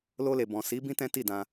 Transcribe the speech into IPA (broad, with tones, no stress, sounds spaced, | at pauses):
l o˧ l e˨ b ɔ̃˨ s i˨˦ b ĩ˦ t ɛ̃˦ t i˦˨ d ã˧